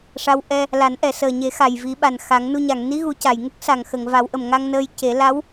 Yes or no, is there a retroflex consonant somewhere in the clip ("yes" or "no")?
yes